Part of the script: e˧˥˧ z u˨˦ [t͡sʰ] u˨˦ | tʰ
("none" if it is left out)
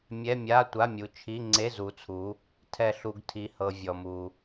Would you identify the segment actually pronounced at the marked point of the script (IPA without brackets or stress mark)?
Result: t͡sʰ